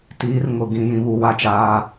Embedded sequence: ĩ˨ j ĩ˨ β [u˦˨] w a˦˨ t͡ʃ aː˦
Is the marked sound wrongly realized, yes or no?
yes